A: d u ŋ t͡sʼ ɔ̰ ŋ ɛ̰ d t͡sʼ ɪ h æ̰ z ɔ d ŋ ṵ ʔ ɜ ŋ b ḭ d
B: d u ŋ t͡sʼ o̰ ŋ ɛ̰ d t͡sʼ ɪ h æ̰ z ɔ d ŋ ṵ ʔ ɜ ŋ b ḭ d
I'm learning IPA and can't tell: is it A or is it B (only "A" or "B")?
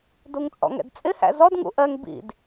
A